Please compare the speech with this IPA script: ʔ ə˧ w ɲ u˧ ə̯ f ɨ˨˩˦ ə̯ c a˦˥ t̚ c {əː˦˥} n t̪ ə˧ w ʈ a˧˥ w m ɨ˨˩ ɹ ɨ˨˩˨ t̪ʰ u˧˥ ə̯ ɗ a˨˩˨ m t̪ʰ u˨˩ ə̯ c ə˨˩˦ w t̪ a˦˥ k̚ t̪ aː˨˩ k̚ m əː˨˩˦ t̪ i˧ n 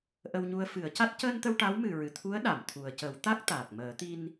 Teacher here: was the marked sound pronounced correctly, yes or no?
no